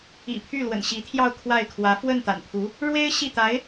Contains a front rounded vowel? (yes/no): yes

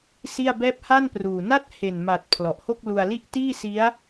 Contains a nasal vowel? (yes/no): no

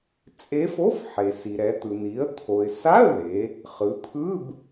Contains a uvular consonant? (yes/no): yes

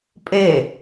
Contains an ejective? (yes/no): yes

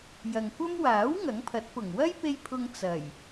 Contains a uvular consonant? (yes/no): no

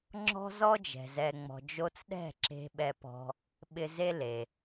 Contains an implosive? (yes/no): yes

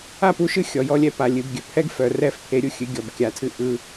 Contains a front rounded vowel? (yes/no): yes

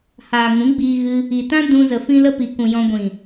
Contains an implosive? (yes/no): no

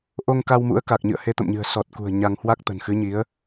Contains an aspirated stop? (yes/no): no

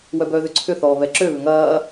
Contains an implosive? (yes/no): no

